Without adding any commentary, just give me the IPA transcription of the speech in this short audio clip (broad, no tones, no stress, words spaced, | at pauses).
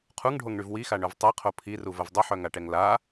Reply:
qʰuŋɖʱoŋɳyv wixaɳœv tˤɛqʰo pʰiruvəv dˤəħœŋaʈɛŋ la